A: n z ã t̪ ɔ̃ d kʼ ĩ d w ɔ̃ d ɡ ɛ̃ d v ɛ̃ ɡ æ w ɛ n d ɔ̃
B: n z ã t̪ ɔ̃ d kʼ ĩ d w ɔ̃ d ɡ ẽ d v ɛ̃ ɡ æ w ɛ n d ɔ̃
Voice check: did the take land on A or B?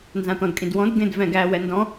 B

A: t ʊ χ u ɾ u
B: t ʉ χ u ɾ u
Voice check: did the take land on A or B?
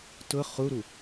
A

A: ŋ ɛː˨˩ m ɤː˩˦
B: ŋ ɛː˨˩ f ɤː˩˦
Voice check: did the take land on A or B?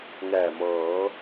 A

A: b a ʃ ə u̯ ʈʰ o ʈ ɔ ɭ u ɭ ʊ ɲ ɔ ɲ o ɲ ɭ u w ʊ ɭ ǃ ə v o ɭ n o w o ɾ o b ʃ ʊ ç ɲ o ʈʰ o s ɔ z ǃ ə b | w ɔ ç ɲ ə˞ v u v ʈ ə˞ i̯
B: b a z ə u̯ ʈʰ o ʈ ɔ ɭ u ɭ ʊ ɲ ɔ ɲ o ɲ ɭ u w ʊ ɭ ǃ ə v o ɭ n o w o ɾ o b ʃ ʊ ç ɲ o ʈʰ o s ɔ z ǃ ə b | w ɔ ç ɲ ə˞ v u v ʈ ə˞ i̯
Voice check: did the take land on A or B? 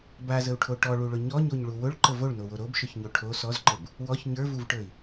B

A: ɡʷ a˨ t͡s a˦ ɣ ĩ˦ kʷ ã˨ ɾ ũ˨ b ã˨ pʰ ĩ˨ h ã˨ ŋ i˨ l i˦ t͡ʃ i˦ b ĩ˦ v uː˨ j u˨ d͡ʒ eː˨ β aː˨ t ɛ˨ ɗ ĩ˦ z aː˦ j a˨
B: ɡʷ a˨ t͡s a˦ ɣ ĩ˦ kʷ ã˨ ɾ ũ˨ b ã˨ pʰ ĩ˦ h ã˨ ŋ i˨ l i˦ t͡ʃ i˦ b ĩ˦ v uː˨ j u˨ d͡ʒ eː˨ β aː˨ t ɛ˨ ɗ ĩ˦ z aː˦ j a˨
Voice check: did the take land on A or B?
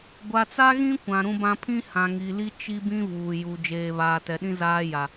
B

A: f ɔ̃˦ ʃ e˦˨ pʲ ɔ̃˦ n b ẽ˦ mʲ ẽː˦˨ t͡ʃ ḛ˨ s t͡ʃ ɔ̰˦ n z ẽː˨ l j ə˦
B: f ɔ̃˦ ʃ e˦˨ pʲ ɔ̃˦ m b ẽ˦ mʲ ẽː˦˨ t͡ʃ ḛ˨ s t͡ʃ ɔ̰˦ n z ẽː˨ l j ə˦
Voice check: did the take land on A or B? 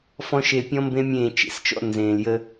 B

